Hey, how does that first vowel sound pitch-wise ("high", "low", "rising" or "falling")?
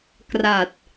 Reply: low